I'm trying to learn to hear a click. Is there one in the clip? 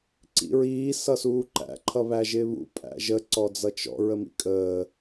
yes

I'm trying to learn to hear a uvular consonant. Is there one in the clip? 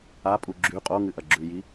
yes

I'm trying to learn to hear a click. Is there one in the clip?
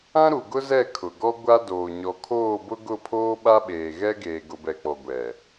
no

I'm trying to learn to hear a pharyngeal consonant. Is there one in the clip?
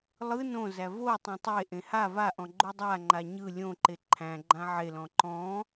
yes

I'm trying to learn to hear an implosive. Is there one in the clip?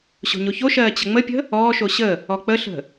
no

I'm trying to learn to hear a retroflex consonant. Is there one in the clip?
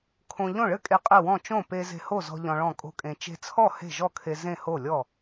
yes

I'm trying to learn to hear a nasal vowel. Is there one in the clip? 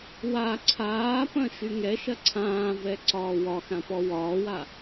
yes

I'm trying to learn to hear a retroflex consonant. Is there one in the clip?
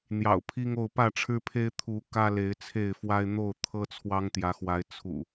yes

